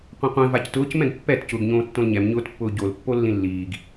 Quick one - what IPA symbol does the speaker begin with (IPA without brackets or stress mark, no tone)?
qʷ